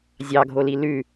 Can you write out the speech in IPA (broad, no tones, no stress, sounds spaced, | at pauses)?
zʲ ɑ ɡʱ o l i l ʉ